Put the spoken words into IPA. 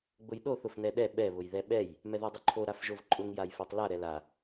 ɡ͡b ʊ j ɗ o θ ʊ f n ɛ ɗ ɛ ɓ ɛ β ʊ j ð ɛ ɓ ɛ j | m ɛ ð a dˤ ʊ ǃʰ o ɾ a f ʒ o v ǃʼ ʊ ŋ j a j f o tˤ l a ɾ ɛ l a

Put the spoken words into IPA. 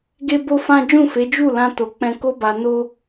ɡ e˦ b o˦ f ã˦ d͡ʒ ũ˦˨ f e˨˦ d͡ʒ u˦˨ l ã˧ t o˨ k͡p ɛ̃˧ k o˦ b a˧ n o˦

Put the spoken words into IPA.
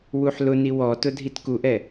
w u ħ l ʊ n i w ɔ t ʊ dʱ i t k u ʔ ɛ

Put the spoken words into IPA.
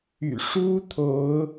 y̰˨˩ ʂ u˦ t̪ʰ o˨˦ ʊ̯

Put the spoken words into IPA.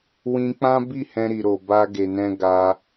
w ĩ˧ k͡p ã˦ b i˦˨ h ɛ̃˧ ɾ i˨ ɾ o˨ b a˧ ɡ e˨ n ɛ̃˧ ɡ a˧

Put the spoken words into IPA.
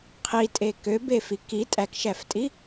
qʰ i tʼ e k ø b e f i k i tʼ æ k ʃ æ f tʼ i

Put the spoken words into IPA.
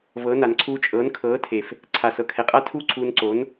v ɤ˨˦ n a˨ n ǀʰ uː˧ t͡ʃʼ ɤː˨˦ n kʰ ɤː˨˦ tʰ e˨ f | ǀʰ aː˨ s ɤ˧ kʰ ɛ˨ qʼ a˦ tʰ u˦ ǀʰ uː˧ n ǀ o˨˦ n

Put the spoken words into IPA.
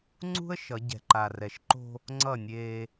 ŋ͡ǀ ṳ˦ ə̯ ʃ ʌ˨˦ ɟ ɛ̤˨ ǃ a˨ r ɛ˨ ʃ ǃ o̤˦ | ŋ͡ǀ ʌ˦˨ nʲ eː˦

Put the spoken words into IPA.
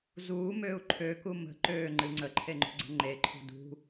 z uː m øː u̯ ǃʰ ø k u m ə̤ ǃ øː ŋ͡ǃ ɨ ŋ͡ǀ ə ǃʰ e ŋ͡ǃ ṳ ɡ͡ǀ ə̤ ŋ͡ǃ e ǃʰ ṳ d ṳ

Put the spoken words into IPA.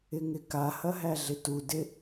ɪ ŋ ɪ k a h ɐ ɦ æ ɮ ɪ t u d ɪ

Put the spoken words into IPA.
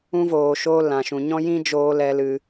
ũ˧ v oː˨ ʃ o˧ l ã˨ ʃ ũ˨ ɲ ɔ̃˦ j ĩ˦ d͡ʒ oː˧ l ɛ˧ l ɨ˧

